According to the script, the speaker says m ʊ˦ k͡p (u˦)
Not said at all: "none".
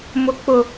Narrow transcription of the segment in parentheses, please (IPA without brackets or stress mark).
ʊ˦